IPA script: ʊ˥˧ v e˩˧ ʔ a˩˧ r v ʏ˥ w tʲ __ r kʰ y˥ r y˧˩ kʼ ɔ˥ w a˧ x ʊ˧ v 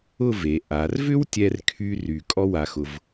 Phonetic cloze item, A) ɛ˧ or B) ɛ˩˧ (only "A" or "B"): A